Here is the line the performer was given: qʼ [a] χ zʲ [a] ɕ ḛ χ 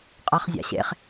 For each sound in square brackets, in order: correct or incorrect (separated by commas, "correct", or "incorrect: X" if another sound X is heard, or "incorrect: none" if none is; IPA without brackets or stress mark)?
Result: correct, incorrect: a̰